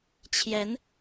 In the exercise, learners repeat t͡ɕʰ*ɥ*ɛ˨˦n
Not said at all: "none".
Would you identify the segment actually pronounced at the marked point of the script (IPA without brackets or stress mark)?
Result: j